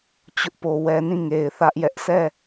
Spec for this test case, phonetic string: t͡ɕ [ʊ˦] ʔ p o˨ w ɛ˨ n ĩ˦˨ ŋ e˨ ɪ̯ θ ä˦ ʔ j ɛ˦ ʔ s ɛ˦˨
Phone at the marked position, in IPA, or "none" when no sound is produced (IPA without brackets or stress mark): ʊ˦